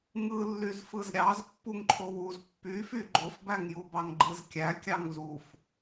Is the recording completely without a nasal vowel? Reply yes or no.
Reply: yes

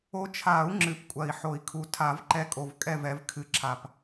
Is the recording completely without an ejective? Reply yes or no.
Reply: no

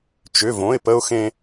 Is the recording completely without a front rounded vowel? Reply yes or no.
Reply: no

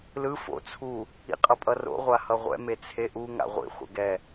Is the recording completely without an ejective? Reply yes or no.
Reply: no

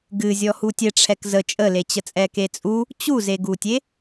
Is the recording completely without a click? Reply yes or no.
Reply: yes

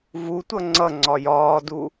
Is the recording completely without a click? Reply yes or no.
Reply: no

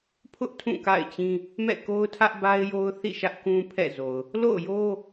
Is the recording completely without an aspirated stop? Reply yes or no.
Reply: no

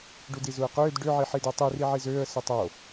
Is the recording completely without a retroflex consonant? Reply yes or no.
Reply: no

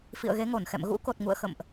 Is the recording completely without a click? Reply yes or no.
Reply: yes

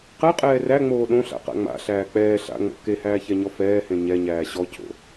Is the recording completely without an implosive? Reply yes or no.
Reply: no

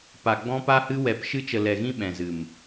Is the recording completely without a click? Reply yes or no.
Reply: yes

